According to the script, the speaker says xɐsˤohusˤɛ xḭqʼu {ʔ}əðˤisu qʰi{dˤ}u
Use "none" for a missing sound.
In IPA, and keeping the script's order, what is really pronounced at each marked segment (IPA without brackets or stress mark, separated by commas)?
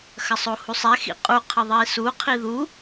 qʰ, ð